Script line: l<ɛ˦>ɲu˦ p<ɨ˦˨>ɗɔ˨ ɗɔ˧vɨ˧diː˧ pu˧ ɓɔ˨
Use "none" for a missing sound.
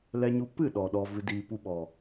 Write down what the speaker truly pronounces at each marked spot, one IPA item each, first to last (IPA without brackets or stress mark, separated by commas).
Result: ɛ˦, ɨ˦˨